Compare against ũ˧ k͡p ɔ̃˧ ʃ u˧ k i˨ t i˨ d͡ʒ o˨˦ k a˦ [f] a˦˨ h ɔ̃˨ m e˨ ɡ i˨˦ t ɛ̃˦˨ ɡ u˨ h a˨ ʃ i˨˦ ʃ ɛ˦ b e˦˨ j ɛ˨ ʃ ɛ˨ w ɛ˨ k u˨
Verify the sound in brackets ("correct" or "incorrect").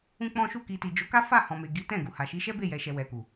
correct